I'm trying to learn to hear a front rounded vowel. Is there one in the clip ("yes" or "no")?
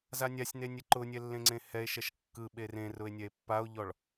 no